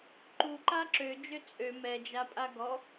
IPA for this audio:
ǃuǃa ǁød͡ʒø t͡sʼø mɛd͡ʒapʼa ɡɔ

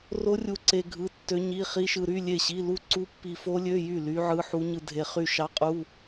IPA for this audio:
ro˦˥rʲu˧ǀe˧ ɡʱɯ˧˥˧tːø˦˥ɲi˧˥˧ χi˦˥ʃɯ˧ɾy˧˥˧ lʲe˥˩ɕi˧˥˧lu˥˩ ǀu˦˥pːi˧fo˦˥lʲø˧˥˧ jy˥˩ ly˦˥ʕɯ˧˥˧ħu˦˥ ɲɯ˧dʱe˧χy˥˩ ʃɑ˦˥qʼu˧˥˧

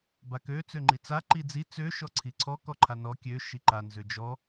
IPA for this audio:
bakø t͡søŋ͡ǃit͡sa ǃid͡zi t͡sø ʃɔǀʰiǀʰɔ kɔǃʰanɔ kʲø ʃiǃa nzød͡ʒɔ

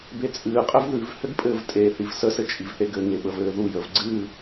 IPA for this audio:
bet͡sʼɨːqʼɘv ðʉvhɘɡ pʼɘːvtʼeθiv səsɘ t͡ʃʼivθeɡɘŋe ɓəvɘːðujəv ɡ͡ǀɨ

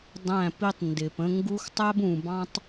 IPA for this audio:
dˤæ̃˦˨pi˦tˤ ndɪ˨pə̃˦ŋɡu˦x tˤæ˦bũ˨bɑ̃˦tˤ

